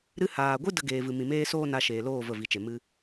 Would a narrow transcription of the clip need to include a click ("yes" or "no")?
no